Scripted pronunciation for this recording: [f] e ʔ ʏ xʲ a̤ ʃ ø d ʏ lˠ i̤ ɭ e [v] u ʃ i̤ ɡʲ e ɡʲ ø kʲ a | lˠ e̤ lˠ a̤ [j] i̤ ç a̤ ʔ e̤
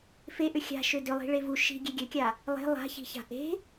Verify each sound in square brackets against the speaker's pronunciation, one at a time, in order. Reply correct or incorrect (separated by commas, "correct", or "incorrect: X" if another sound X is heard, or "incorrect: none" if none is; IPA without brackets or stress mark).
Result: correct, correct, incorrect: ç